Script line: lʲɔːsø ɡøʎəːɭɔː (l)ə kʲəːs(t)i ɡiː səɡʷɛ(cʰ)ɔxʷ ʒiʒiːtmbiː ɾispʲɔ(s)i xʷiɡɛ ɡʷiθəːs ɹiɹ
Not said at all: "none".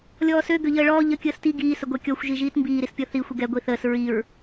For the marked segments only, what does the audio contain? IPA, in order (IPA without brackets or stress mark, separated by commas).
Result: ʎ, t, kʲ, θ